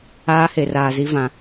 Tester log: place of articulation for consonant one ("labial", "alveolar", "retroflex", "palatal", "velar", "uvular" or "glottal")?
glottal